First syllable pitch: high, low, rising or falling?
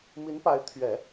rising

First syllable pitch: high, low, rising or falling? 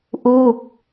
falling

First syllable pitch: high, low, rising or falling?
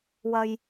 low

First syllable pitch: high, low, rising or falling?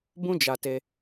high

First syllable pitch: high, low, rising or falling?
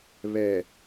low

